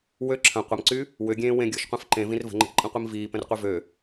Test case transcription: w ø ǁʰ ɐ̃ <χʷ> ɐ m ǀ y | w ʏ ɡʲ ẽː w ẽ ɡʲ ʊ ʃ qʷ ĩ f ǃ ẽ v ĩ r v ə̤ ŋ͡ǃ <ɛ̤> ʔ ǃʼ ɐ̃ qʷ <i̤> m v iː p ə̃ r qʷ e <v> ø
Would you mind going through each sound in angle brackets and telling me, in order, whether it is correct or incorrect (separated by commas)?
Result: incorrect, incorrect, incorrect, correct